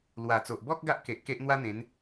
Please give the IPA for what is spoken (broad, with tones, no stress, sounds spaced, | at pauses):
l w a˨˩ t͡s o˨ ʔ b ɔ˦ k̚ ɡ a˦ ʔ k e˨ ʔ k e˦ ʔ n̪ w a˦ n̪ ẽ˨˦ n